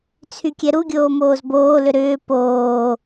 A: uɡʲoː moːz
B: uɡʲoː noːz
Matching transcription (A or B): A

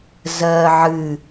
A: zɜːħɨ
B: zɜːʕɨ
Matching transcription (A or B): B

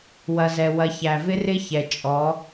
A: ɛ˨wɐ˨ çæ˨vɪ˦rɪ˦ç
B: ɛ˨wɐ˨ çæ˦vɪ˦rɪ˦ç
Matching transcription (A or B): A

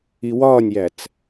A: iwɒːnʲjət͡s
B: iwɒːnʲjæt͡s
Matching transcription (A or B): B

